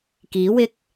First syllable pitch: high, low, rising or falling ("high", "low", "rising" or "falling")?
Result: rising